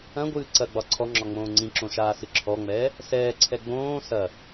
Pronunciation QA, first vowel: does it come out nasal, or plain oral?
nasal